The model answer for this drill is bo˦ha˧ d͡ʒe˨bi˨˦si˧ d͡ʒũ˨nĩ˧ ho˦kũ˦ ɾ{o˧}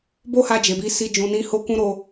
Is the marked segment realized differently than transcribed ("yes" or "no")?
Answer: no